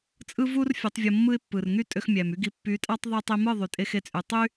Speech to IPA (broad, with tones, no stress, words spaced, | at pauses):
t͡sʼɯ˦vu˦r fʲø˨˦tˤvʲo˧mːɯ˦ɪ̯ pːɯ˨rŋy˦tʼø˧x mʲæ˨my˦ɡi˧ pːy˨˦ tʼɑ˦tˤ ðˤu˧tˤi˧mɯ˦˨ ðˤy˨tʼe˧xe˧t͡sʼy˨ tˤy˦